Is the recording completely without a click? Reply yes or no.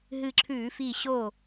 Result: no